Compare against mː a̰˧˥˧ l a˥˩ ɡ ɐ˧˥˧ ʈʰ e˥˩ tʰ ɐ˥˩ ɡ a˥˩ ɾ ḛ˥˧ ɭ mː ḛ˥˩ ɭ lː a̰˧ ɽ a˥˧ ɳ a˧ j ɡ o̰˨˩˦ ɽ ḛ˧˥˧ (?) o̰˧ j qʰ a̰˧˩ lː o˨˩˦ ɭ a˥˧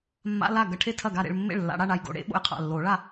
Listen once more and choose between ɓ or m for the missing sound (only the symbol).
ɓ